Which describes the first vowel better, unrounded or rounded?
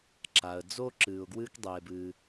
unrounded